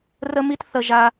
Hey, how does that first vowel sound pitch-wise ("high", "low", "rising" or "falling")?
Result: high